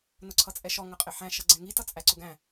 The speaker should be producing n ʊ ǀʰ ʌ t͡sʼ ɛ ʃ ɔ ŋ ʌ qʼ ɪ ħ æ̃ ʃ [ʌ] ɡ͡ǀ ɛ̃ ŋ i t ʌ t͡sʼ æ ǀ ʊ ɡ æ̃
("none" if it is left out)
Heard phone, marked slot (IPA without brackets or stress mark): ʌ